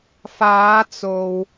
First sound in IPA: f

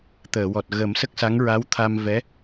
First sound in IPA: t̪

